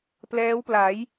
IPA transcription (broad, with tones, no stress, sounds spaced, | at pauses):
p l ɛː˦˥ w p l a˩˦ j